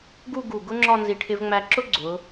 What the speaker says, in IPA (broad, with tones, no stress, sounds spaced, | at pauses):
ɡ u˥˧ ɡ u˧˩ ɡ ʊ˥ ŋ͡ǁ ɒ˥˧ n z i˧˩ ʈʰ ɪ˧ v ŋ͡m æ˧ ǁ ʊ˥ ɡ͡ǀ ʊ˩˧